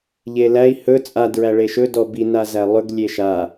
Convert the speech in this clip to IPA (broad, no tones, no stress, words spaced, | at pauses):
ʎelæi̯ hɵ t͡sʼa dɹæɭeʃɵ dɔbi nazælˠɵɡ lʲeʃa